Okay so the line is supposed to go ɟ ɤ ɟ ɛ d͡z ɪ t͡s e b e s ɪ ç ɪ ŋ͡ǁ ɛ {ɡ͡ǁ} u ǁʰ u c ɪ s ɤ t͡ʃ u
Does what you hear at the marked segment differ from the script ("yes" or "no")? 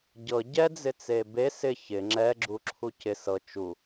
no